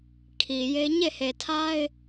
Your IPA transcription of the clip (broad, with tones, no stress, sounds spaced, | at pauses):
kʰ i˨ j e˦ ɲ e˦˨ h e˨ tʰ a˦ ɪ̯